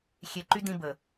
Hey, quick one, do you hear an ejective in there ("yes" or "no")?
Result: no